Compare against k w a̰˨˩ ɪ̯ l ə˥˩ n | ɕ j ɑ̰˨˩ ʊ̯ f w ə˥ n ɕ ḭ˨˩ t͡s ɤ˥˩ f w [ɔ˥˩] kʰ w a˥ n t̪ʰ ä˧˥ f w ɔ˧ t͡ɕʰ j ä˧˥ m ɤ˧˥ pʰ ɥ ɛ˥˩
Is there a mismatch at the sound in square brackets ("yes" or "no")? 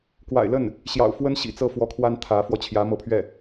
yes